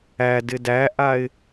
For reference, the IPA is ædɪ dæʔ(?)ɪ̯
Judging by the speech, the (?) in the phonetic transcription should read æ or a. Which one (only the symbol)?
a